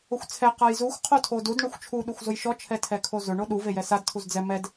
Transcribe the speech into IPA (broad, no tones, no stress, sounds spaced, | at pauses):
ʊ xʷ t͡sʰ ɛ q a j z u xʷ qʰ o tʰ o d u d ɳ ʊ xʷ t͡ʃʰ u ɗ u xʷ z ʊ j ʃ ɔ t͡ʃʰ ɛ tʰ ɛ kʰ o z ʊ ɳ o ɗ u v e j ɛ s a d tʰ u z d͡z ɛ m ɛ d